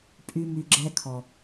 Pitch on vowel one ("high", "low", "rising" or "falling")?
high